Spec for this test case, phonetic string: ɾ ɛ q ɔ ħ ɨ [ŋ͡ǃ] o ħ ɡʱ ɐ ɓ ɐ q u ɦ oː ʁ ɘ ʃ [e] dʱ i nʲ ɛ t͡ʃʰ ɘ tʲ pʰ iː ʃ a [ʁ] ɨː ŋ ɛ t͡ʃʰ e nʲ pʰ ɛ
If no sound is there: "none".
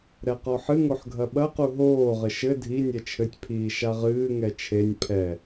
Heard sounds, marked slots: ŋ, ɘ, ʁ

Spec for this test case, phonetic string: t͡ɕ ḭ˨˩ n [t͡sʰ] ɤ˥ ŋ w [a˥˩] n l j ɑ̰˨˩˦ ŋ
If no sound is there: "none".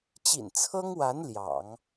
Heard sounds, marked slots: t͡sʰ, a˧˥

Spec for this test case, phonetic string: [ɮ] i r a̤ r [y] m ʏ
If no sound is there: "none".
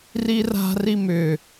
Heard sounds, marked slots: r, i

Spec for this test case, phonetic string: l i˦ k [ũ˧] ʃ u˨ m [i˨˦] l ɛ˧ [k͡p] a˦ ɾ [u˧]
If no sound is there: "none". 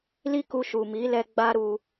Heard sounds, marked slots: u˧, i˨˦, ɡ͡b, u˧

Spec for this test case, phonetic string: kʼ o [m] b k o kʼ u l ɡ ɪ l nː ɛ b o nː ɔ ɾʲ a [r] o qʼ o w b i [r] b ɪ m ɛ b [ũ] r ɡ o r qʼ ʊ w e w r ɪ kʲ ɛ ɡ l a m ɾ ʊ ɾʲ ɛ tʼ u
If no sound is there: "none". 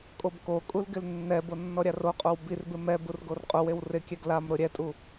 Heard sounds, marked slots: none, r, r, u

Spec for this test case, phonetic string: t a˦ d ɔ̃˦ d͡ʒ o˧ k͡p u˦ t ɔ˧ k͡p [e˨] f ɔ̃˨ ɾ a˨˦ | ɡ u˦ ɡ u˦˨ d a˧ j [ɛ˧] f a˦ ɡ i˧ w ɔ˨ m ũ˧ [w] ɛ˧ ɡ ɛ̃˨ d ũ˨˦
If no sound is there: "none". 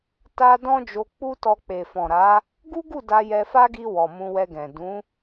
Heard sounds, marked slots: e˨, ɛ˧, w

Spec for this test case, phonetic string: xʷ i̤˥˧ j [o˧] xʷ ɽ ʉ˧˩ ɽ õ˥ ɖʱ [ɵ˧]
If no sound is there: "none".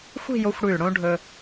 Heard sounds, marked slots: o˧, ɵ˧

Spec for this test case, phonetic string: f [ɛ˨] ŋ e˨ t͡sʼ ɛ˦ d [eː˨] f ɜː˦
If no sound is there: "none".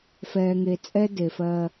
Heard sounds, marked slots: ɛː˨, e˨

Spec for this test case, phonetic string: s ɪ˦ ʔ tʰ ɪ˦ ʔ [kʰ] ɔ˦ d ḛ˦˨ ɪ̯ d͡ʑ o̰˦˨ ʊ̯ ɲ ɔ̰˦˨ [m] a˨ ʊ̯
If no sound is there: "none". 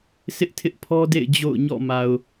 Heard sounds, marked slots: pʰ, m

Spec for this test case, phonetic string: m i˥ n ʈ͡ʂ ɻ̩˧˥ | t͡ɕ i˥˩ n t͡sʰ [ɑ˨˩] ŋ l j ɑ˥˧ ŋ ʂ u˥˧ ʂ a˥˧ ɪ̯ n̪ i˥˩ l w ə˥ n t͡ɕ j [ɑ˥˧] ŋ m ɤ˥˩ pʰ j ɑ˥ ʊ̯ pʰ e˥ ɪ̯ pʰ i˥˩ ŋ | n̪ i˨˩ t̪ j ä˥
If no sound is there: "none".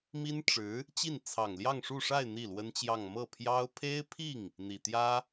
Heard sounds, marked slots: ɑ˨˩, ɑ˥˧

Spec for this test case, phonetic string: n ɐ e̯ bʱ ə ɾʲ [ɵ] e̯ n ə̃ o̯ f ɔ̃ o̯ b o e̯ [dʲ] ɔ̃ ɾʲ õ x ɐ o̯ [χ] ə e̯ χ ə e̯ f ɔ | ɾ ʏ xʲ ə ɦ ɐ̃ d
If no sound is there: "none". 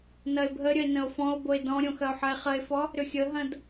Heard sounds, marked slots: ə, d, ħ

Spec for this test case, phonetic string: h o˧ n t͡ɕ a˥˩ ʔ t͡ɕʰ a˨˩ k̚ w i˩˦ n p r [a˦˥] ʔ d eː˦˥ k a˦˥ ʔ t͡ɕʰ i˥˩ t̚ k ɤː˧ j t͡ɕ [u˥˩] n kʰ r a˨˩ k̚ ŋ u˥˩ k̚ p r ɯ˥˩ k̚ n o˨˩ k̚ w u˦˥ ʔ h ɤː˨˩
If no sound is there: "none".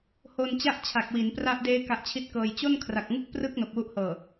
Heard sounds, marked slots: a˦˥, o˥˩

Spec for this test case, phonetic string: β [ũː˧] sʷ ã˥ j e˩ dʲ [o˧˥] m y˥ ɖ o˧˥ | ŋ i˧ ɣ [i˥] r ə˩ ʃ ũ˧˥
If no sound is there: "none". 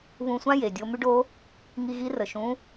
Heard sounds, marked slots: ũ˧, o˧, i˧˥

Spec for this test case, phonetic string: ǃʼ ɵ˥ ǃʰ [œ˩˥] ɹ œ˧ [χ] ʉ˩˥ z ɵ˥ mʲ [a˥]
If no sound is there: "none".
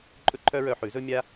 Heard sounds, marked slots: œ˥, ħ, a˥

